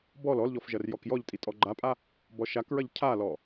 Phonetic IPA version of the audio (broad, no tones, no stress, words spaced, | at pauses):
bɔl ɔlʎɔf ʒɐrjɔkjɔʎtʼi tʼɔɡ͡ǃapʼa | bɔʃakɹɐʎ cʰalɔ